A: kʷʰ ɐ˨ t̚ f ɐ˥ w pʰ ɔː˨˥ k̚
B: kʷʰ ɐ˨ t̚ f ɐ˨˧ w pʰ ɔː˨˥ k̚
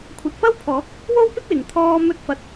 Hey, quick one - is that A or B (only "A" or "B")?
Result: A